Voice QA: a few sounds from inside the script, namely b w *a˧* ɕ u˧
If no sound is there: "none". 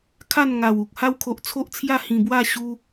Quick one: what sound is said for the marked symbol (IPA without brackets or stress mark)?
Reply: a˥˧